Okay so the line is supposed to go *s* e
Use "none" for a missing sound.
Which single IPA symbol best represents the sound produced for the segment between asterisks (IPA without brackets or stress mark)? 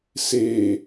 s